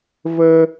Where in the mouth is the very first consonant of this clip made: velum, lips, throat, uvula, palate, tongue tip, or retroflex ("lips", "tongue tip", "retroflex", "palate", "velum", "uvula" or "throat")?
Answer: lips